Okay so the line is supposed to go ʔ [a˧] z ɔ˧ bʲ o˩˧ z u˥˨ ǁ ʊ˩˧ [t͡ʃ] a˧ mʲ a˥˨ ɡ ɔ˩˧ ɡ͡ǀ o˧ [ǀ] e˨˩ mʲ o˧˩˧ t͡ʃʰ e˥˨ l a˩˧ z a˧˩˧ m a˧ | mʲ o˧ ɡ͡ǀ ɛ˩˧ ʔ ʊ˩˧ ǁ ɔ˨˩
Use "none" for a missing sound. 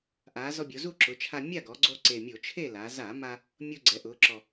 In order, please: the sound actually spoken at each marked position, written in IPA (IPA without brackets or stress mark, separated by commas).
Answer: a˩˧, t͡ʃʰ, ǀ